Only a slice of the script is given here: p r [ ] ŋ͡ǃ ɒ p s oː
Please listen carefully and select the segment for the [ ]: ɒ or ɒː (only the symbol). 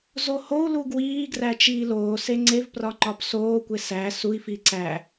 ɒ